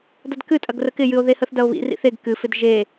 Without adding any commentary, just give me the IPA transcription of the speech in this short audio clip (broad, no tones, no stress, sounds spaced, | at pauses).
d ɐ d k ɨ tʼ ɐ ɡ r ə k ɪ j ɨ o̯ ð e h ə θ d ɐ o̯ β ḭ r ḭ θ e ɡ k ɨ f ɪ d ʒ e